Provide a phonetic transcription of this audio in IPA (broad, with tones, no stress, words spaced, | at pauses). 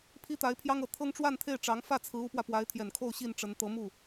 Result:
pʰi˥t̪a˧˥ɪ̯pʰjɑ˥ŋɤ˨˩ t̪ʰɤ˥ŋʈ͡ʂwa˥˧nt̪ʰe˥˩ɪ̯ʈ͡ʂɑ˧˥ŋ fä˥˩t͡sʰɹ̩˧˥ u˧˥pwä˧ pwa˧˥ɪ̯t̪ʰjɛ˨˩nkʰo˥˧ʊ̯ ɕi˥˩nʈ͡ʂə˧˥n t̪ɤ˧˥mu˥˩